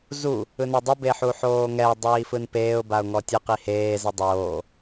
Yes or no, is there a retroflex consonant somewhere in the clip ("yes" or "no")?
no